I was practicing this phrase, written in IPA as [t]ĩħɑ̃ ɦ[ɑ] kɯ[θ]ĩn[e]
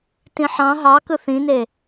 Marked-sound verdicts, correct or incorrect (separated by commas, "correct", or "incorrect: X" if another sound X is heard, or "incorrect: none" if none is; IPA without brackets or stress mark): correct, correct, correct, correct